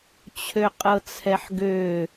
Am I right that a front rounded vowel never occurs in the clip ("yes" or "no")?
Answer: no